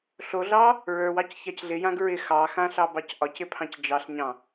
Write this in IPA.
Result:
ɬoɮɑ | ɹə˞wɑc çacɮɪjãɡ ɹɪx ɑxã ɬɑbɑcʔɒcɪ pʰɑ̃cd͡ʒɑɬɲɑ̃

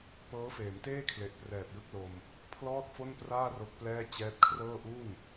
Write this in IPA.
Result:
pɤː˦˥feː˩˦mteː˥˩kʰle˨˩ʔ prɛː˨˩p̚jɯ˥˩k̚lo˧m | pʰlɔː˥˩t̚fo˥˩npraː˥˩ ro˦˥k̚plɛː˥˩ t͡ɕɛː˦˥t̚kʰrɤː˥˩ ʔu˥˩n

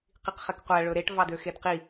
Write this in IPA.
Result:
qiqχɛkqʷæ ɭɵɾeʈ vɑdøxedqi

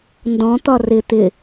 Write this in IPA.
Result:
ndɔ̃t̪ɒ rɪ t̪ɪ

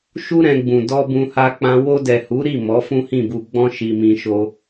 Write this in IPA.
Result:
ʃu˦ ɾɛ̃˧ɡ͡bũ˨ dɔ˧bũ˧ha˧k͡pã˧ wo˧dɛ˨hu˨˦ ɾi˦˨ mɔ˨˦fũ˦hĩ˦˨bu˧ ɡ͡bɔ̃˦ ʃi˧mĩ˧ʃo˦

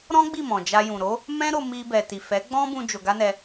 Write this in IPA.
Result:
ɾɔ̃˦ɡ͡bi˦˨mɔ̃˨ d͡ʒa˧jũ˨ɾo˨˦ | mɛ̃˦ɾo˧ mi˧bɛ˨ti˨ fɛ˨˦ɡ͡bɔ̃˦ bũ˦d͡ʒo˧ɡa˦nɛ˧

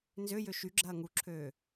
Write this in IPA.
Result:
nzøjø ʃyɡ͡ǁɐː ŋuǁʰøː

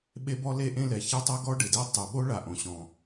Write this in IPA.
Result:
ɓe˥bɔ˥le˥ʔẽ˥ lɛ˩çɛ˥tˤo˥ ɡɔ˥ɖɪ˩de˥ tˤu˩ɓo˥ ɭa˩ʔõ˩ɕɔ̃˩

